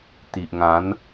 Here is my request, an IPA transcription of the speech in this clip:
t̪ i˨ ʔ ŋ ã˨˦ n

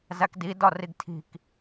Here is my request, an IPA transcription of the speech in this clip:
z æ k d i d ɒ r i ɡ tʰ i̤ k

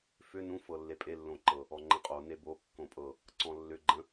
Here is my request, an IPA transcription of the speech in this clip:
f ʏ n ũ f ɤ lː e pʼ e lː õ ǃ ɤ | ɔ ŋ͡ǃ ə̃ qʼ o n e b o kː õ pʼ ɤ | ǀ ɔ̃ lː ʏ ɡ͡ǃ ə̃

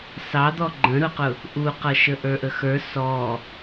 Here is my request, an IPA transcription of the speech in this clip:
s ɑ d̪ ɔ ɡ͡ǃ ə̃ ɾ ʊ q ʊ | ʔ u q ʌ ʃ ə ʔ ə˞ ʔ ə x ə˞ s ɔ

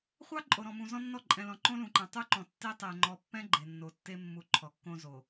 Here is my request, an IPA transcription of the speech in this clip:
χʷ ɑ˦ ǃʼ o˨ ɾ ɔ̃˨ m ũ˨ z ɔ̃˦ nː ɔ˦˨ ǃʼ ɛ̃˨ l ɔ̃˨ ǃ õ˦ l ũ˨ ǃ ɛ̃˨ tˤ u˦ ǃ ɔ̃˨ tː e˦ tˤ e˨ ŋ͡ǃ ɔ˨ pː ɛ̃˦ ɡ͡ǃ e˨ nː o˨ tː e˦ mː u˨ ǃʰ ɔ˨ kː õ˦ z o˨

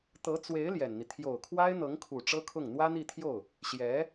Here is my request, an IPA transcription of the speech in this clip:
t̪ ɤ˧˥ t͡s w e˧˥ ɪ̯ l j ɛ˨˩ n n̪ i˦ t̪ʰ j o˨˩ ʊ̯ kʰ w a˥ ɪ̯ n̪ ɤ˧˥ ŋ kʰ u˨˩ ʈ͡ʂ ɤ˥ kʰ ʊ˥˩ ŋ n̪ w ä˥ n̪ i˥˧ t̪ʰ j o˥˩ ʊ̯ | ɕ j ɛ˧˥

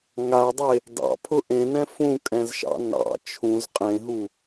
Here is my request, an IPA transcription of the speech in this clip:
ŋ a dˤ e | d ɑ̰ pʰ ʊ ʔ ẽ n ɛ̃ f ũ kʼ ɛ̃ z ʃ ɑ̰ n ɑ̰ t͡ʃʰ ũ z qʼ ẽ ɦ u

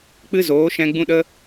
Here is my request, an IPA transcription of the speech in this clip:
k͡p ɨ˦ z oː˨˦ ʃ ɛ̃˧ ɡ͡b ũ˦ ɗ ə˦

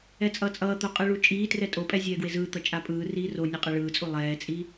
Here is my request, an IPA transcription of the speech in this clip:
ɛ t͡sʼ ʌː t͡sʼ ʌː t̪ o qʼ ɯ ɭ u t͡ʃʼ iː t r ɛ tʼ o pʼ ɛ zʲ ɛː ɡ w e z ɯː t̪ ʌ t͡ʃʼ a pʼ ɯː r iː r o nʲ ʌ qʼ ɛ ɭ ɯː t͡sʼ u lˠ ɛː t͡sʼ i

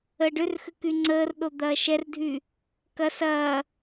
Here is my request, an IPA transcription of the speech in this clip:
əː ɖ ʏ r x ʏ k y ŋ͡ǀ əː r ɗ o d̪ ɐː ʃ ɛ r dʱ y | k ɐ s ɐː

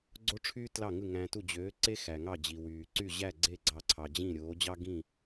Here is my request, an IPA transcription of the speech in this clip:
ɡ͡ǀ o˥ ʈ͡ʂʰ yː˥ t l ɑ˥˩ ŋ ɯ˥˩ ŋ æ̃˧ t u˥˩ d͡ʑ øː˩˥ ǀ e˥ x æ˩ ŋ ɑ˥˩ d͡ʑ i˩ w yː˩ ǀ y˥˩ ʑ æ˥˩ ɡ͡ǀ e˥˩ ɡ͡ǀ ɑ˧ ǀʰ ɑ˩ d͡ʑ ĩ˥˩ ɾʲ oː˩˥ d͡ʑ ɑ˥ ɡ ĩ˥˩

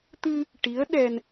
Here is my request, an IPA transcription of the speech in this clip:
t̪ ɨ˧ | ʈ i˧˥ ə̯ ɗ ɛ˧ n

